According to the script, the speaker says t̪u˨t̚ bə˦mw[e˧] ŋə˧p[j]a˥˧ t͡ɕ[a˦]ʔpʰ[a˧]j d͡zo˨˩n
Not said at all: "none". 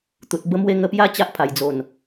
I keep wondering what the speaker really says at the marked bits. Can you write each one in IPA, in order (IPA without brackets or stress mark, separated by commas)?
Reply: e˦, j, a˦, a˨˩